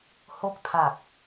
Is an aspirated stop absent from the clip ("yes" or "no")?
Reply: no